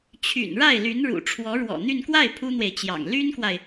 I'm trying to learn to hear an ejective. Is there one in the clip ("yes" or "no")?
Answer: no